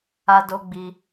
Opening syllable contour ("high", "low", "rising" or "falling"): high